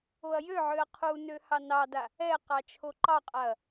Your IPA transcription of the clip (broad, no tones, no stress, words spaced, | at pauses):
oɐ̯jøʕøɐ̯ qʰunø hɑnɑda | ɛ qɑt͡ʃʰoǃɑqʼaɐ̯